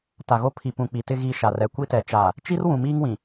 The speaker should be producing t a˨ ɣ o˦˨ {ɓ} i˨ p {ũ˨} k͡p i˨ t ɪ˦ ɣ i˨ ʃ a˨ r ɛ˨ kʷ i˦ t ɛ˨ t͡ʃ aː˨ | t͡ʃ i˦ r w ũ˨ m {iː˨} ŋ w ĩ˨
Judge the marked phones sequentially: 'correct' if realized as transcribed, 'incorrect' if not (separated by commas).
incorrect, correct, incorrect